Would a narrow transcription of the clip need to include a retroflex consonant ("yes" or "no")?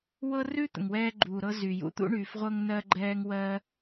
yes